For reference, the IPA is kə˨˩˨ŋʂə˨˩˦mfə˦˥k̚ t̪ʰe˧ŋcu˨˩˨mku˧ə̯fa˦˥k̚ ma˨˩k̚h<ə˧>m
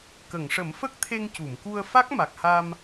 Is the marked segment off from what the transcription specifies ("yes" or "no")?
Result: yes